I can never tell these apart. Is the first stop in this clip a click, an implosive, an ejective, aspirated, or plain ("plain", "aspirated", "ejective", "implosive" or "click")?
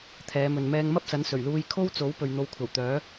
aspirated